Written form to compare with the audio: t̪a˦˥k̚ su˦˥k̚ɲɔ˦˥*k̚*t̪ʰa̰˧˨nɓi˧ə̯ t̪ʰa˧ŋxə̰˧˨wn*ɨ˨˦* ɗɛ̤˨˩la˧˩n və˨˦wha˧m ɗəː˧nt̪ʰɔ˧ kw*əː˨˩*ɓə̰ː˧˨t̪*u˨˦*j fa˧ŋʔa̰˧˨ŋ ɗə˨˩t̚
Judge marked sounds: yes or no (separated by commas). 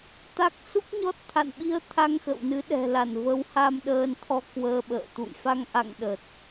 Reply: no, yes, no, no